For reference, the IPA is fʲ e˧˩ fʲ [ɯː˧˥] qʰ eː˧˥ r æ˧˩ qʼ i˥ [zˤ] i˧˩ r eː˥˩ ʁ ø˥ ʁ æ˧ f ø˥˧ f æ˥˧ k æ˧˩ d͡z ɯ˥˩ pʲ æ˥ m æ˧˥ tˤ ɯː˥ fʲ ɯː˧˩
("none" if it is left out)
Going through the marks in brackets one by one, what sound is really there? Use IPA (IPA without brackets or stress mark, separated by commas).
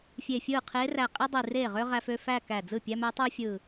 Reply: ɯː˥˩, dˤ